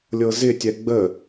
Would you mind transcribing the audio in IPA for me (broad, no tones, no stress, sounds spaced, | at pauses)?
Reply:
lʲ ɤ z ɪ tʲ ɛ ɡ͡b ə